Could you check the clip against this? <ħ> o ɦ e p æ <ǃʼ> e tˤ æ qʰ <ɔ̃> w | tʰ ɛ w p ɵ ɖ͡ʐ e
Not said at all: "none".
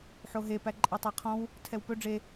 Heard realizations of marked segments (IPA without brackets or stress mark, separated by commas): ħ, ǃʼ, ɔ̃